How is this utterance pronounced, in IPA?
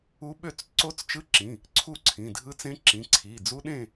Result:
u˦˥ ɓø˥˨t͡s ǀo˦˥t͡st͡ʃɯ˦˥ǁĩ˩˧˩ | ǀʰu˥˨ǀʰĩ˩˧˩dʱɯ˦˥t͡sẽ˦˥ ǁĩ˩˧˩ǀʰi˩˧˩d͡zu˦˥ ɗẽ˥˨

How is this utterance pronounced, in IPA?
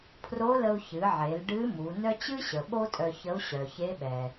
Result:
pʰro˧˥lə˧u̯ çɨ˩˧ʕe˩˧l ɖɨ˧˥ mu˩˧ nœ˥ t͡ɕɨ˥ɕə˩ ɓo˥tʼœ˧çə˧˥u̯ ɕœ˩çe˧˥ɓɛ˩

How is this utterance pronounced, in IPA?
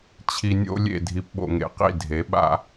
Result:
t͡ɕʰi˨nʲo̰˥˧lʲḛ˥˩ dʱi˨pɓo̰˨ŋḛ˨qḭ˥˩ dʱe˩˥ɓa̰˥˧

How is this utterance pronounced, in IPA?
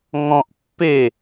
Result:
ŋɔ̃ʔ pːe

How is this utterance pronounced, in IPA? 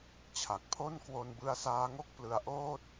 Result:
t͡ɕʰa˨˩k̚pʰo˥˩n kwo˧nbɯ˦˥a̯saː˦˥ŋo˥˩k̚ plɯ˧a̯ʔoː˥˩t̚

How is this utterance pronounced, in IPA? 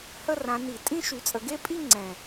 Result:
hə˥˧rã˨˦ ni˧˩˧ tʼĩ˥˧ ʃy˨˦t͡sʼə˨˦ɡe˥˧pʼi˥˧ ŋ͡ǀɛ̃˨˩

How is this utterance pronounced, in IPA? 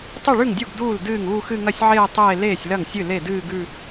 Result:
tˤɨ˥˩ɭʉ˥˩ŋdʲu˥˩ɡ duː˥˩l dɨː˥˩ŋuː˥˧xɨ˥˧ ŋɐ˥˩sʲʕeː˥˧ tˤeː˥˧ leː˥˩sʲlɐ˥˩ŋsʲɨ˥˩ le˥˩dɨː˥˧ɡʉ˥˧

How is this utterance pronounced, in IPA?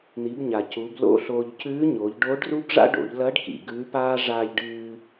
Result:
n̪i˩˧bɲa˩ cu˩˧blo̰˥ɬoː˧ʎ cʉː˧˥ɲo˩˧ʎɖo˧˥ɖru˥ɡ ʐa̰˥ɖo̰˩˧ʎ lɐ˧˥ɖkḭ˩ ɡʉː˧˥paː˥ ʐaː˧ʎɖɨː˧

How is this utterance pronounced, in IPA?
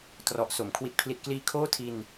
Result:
trɔ˨˩ʔso˩˦m kʰwi˨˩t̚pʰli˨˩t̚kliː˧ kʰoː˥˩ tʰi˧n

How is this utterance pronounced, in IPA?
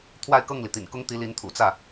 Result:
t̪ʰwa˥˧ɪ̯kɤ˥˩ŋli˩ t̪ḭ˨˩nkʊ˥ŋt̪i˧˥ li˧˥nt̪ʰṵ˨˩t͡sä˥˩

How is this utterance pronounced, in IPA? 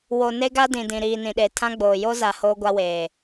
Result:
wo˨ne˦ɡa˦ dĩ˨dĩ˨ ɾiː˨nĩ˨ɗe˨ tʰã˦ɡ͡boː˨ jo˦za˨ hoː˦ɡʷa˦weː˨

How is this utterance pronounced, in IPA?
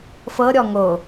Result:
fɤ ɾʲɔŋo

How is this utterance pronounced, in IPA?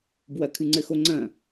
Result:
bwɐkʰɨŋ͡ǀɘxo ŋ͡ǀɐ̃

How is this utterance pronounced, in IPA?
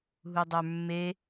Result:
ɦudˤə˞mːe

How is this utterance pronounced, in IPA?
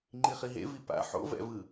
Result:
ŋ͡ǃiχiɦḛ vipa̰ ħo̰vɛ̰vɯ

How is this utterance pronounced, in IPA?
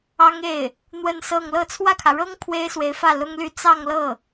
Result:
ɑ˥ŋe˥˩ɪ̯ | n̪wə˥˧nsɤ˥˧ŋ lɤ˥˧ t͡sʰwä˥˩kʰä˩ɻɤ˥ŋ pʰwe˥ɪ̯swe˧˥ɪ̯fä˥˩ lʊ˥ŋly˥˧ t͡sɑ˥˧ŋlɤ˥˩

